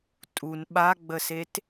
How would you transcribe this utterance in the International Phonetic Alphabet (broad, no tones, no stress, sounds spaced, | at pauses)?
tʼ u n ɓ a ɡ͡b ə s e t